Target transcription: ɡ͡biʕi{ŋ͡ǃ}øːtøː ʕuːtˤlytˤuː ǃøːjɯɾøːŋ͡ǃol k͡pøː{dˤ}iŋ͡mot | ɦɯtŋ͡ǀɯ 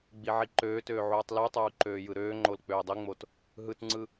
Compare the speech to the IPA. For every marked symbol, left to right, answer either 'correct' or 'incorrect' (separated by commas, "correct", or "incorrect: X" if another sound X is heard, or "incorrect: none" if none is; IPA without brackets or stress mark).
incorrect: ǃ, correct